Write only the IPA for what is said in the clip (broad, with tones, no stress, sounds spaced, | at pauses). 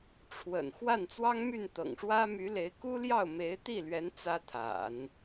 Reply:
ʈ͡ʂʰ w ə̰˨˩ n x w a˥˩ n t͡s w ɑ˥ ŋ m y˥˩ n t̪ ɤ̰˨˩ ŋ ʂ w ä˥ m y˧˥ l e˧˥ ɪ̯ k u˥ l j ɑ˥˩ ʊ̯ m e˧˥ ɪ̯ t̪ i˥˩ l ɥ ɛ˧˥ n t͡s ä˥ t̪ʰ a̰˨˩˦ n